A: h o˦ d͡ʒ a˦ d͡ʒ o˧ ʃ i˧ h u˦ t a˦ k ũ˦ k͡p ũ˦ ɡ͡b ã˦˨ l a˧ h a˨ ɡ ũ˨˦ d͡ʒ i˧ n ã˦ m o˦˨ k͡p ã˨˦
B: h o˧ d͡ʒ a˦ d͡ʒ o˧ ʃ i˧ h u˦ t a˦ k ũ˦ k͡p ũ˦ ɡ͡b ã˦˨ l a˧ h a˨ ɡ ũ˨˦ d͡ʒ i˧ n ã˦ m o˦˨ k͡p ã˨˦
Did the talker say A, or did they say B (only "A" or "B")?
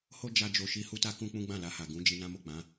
A